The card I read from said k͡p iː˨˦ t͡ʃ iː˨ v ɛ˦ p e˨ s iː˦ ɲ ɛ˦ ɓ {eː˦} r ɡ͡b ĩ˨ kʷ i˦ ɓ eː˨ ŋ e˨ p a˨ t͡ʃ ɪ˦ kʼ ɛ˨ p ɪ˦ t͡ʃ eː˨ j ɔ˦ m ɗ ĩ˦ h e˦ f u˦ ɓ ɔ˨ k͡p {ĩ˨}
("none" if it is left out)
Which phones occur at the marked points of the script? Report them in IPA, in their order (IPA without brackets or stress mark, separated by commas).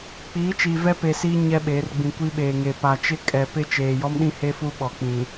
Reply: eː˨˦, ĩ˨